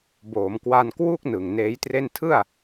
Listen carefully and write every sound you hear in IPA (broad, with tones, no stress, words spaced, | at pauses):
boː˩˦mkwa˧nkwu˥˩k̚ nɯ˨˩ŋneː˦˥jtre˥˩n tʰɯ˥˩a̯